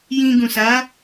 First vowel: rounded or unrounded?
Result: unrounded